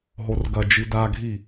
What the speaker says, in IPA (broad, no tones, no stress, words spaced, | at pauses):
ɦorɡɐd͡ʒi daɡʱi